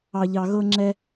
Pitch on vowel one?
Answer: low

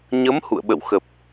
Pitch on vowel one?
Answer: rising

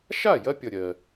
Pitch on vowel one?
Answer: falling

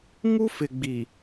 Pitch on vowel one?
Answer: high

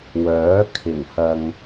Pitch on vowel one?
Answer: rising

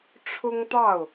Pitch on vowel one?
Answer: high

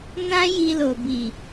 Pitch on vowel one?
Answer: high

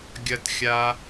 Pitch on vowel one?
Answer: high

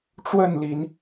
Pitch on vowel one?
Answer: falling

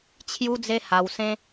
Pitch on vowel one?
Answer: high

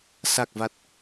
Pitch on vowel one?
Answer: low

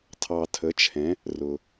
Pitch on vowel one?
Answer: low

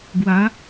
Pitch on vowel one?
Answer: rising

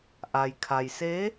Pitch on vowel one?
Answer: low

